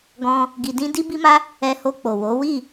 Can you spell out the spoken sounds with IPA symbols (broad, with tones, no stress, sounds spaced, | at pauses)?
ɡ ɔ̃˧ | ɡ i˧ d ĩ˦ d i˦ b i˦ m a˦ | ɛ˧ h o˧ k͡p o˨ w o˨˦ w i˦˨